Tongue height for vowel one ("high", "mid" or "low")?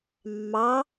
low